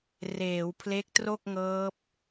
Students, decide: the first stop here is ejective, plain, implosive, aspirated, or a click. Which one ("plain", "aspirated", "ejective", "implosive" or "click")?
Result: aspirated